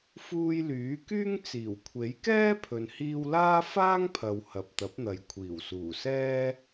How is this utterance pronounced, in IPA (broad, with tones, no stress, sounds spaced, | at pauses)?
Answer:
f uː˧ j l yː˨˥ k yː˥ ŋ t͡s iː˨˩ w kʷʰ e˨˥ j k ɛː˥ pʰ ɵ˨ n h iː˧ w l aː˥ f aː˥ ŋ pʰ ɐ˨ w h ɐ˨ p̚ t̪ ɐ˨˥ p̚ n̪ ɐ˨ j kʷʰ iː˨˩ w s uː˨˩ s ɛː˥